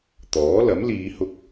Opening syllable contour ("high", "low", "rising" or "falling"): rising